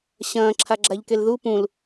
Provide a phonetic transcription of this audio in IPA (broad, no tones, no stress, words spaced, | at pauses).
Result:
ɕɐ̃ː ǁʰaɡ͡ǁaʎkelðu pũl